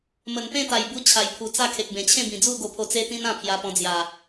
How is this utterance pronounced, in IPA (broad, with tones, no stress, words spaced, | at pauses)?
mə˨˩npẽ˥˧t̪a˨˩j bu˦t͡ɕʰa˨˩jpʰu˨˩t͡sa˥˧ kʰe˨k̚bẽ˨˩t͡ɕʰẽ˥˧ bĩ˨˩d͡zu˥˧ ɡo˧pʰo˧ t͡se˦t̪ĩ˦n ã˥˧pʰja˧pɔ̃˧d͡zja˨˩